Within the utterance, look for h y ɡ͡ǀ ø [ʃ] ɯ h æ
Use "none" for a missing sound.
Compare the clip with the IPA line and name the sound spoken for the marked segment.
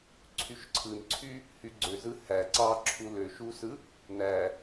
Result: z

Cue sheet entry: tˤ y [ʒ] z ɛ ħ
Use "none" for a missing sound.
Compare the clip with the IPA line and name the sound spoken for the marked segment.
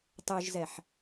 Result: ʒ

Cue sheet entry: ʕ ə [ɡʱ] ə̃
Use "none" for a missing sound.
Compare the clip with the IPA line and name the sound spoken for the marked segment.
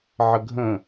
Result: ɡʱ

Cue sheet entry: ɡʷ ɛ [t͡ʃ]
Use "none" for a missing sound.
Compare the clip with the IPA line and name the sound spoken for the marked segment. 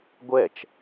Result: t͡ʃ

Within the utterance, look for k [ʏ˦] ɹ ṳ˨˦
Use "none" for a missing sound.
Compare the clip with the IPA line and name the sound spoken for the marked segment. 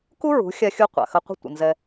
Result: u˦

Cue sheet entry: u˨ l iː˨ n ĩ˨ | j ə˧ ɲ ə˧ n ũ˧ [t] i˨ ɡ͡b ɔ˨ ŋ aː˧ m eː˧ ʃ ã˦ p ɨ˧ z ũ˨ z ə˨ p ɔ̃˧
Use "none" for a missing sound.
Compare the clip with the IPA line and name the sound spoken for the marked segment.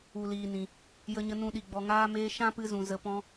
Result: ɗ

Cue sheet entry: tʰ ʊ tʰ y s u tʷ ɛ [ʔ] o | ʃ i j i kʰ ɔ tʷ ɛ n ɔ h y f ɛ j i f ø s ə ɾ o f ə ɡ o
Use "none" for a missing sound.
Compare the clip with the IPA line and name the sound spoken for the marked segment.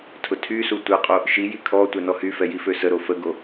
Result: qʼ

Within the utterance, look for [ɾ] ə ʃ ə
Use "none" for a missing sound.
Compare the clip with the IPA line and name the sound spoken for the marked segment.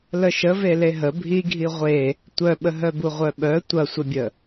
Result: l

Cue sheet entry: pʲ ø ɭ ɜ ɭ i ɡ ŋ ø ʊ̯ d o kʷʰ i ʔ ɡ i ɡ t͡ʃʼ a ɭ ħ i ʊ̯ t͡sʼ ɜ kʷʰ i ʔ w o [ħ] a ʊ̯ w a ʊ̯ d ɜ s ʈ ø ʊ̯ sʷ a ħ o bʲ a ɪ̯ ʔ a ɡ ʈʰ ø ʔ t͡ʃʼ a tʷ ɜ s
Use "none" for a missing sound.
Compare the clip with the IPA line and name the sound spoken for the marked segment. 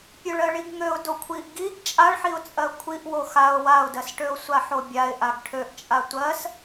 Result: x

